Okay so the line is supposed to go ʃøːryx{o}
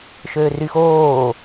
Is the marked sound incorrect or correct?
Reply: incorrect